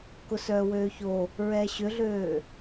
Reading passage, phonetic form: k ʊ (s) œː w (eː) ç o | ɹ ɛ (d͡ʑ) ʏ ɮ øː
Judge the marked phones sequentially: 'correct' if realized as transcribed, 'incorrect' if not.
correct, incorrect: øː, incorrect: ɕ

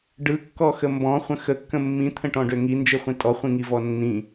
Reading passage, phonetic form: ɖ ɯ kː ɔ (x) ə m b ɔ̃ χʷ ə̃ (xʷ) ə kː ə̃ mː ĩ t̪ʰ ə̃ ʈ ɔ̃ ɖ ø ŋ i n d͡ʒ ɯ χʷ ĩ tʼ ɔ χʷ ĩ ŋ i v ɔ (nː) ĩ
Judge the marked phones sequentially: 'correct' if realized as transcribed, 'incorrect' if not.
correct, incorrect: x, correct

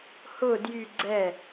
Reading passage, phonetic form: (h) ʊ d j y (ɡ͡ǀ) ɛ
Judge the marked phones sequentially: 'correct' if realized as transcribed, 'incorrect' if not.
correct, correct

